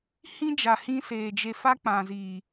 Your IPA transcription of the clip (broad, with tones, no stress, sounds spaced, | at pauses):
h ĩ˦ d͡ʒ a˨ h ĩ˧ s eː˨ d͡ʒ e˧ f a˦ k͡p ã˨ z iː˨